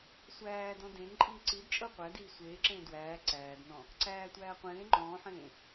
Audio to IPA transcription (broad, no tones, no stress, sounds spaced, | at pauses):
sʷ æː d ɔ̃ d ẽ n ǃʼ iː ǀ i d t͡ʃʼ ɤ qʷ æ d iː sʷ eː ǁ ẽː d w æː ǀ æː d n ɔ̃ | ǀ æː tʷ æː qʷ ẽː ŋ͡ǃ ɔ̃ː ħ ẽː